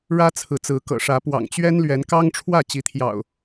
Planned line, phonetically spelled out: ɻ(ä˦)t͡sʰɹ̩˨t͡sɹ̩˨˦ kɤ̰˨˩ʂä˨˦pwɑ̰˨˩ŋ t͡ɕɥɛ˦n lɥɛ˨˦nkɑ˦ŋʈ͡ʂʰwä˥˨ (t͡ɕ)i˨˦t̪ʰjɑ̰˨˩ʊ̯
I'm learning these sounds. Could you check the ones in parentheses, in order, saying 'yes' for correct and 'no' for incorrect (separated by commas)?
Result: yes, yes